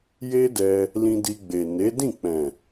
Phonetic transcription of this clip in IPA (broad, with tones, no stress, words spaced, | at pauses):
je˦dɛ˧ | lĩ˧di˧ɡ͡be˨ ne˨˦dĩ˦˨ k͡pɛ̃˨